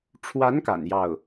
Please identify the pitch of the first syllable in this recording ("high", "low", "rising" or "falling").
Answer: rising